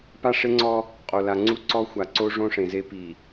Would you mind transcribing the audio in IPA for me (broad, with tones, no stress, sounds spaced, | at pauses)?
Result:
p a˦ ʂ e˦ ŋ͡ǀ ɔ˦ | qʼ o˨ l a˨ ŋ͡ǀ u˦ ǀ ɔ˦ xʷ a˨ ǀ o˦ ʐ õ˦ ʂ ẽ˨ z e˦ p i˨